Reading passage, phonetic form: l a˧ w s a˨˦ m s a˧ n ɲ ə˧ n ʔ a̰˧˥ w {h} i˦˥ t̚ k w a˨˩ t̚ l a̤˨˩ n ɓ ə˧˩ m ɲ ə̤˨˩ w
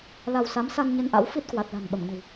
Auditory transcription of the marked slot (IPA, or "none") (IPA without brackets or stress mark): f